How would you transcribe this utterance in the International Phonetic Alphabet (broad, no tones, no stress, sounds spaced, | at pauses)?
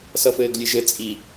s ʌ f ɘː ɡ lʲ ɨ ʒ ɘ t͡sʼ i